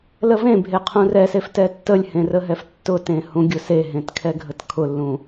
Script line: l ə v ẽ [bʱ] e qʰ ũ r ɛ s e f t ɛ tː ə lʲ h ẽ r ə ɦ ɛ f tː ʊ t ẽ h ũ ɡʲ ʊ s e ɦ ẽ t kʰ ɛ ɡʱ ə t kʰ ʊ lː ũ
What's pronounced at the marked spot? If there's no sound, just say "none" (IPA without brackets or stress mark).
bʱ